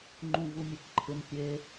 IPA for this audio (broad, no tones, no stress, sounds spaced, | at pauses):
ŋ͡ǃ ũ v u mʲ e k ǃʰ ɪ n pʲ e